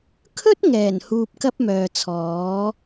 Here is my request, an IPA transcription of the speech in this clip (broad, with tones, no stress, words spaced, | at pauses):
kʰɵ˥t̚ ŋɛː˨˩n huː˧p̚kɐ˥p̚mœː˨t͡sʰɔː˨˥